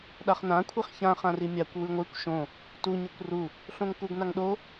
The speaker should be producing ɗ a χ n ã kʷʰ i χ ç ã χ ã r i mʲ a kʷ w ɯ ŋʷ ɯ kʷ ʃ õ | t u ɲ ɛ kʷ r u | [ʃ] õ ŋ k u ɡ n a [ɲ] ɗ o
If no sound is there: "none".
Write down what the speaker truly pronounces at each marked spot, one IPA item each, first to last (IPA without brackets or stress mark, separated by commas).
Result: ɬ, ŋ